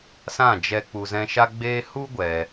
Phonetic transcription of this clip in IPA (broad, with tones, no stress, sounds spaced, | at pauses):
s ã˦˨ d͡ʒ ɛ˧ k͡p u˧ z ɛ̃˦ ʃ a˦ ɡ͡b eː˦ h u˦ ɡʷ ɛ˧